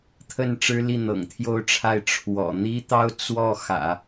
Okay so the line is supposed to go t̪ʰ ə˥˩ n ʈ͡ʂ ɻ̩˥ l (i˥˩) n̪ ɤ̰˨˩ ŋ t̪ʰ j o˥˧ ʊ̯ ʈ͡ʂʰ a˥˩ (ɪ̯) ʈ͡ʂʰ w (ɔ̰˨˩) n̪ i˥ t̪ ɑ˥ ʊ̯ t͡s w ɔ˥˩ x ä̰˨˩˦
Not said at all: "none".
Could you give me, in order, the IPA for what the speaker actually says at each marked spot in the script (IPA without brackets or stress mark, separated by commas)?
i˥˩, ɪ̯, ɔ̰˨˩